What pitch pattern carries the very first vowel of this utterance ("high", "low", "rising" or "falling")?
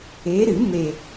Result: rising